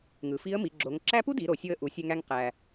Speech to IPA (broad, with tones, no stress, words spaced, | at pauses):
ŋɯ˩fi˧˥ə̯mi˩˧ ɡ͡ǁo˩˧ŋ ǁæ˥ pu˥di˩˧ɾo˩ sʲo˧ə̯ʔu˩˧ sʲø˧ŋæ˧ŋ qæ˩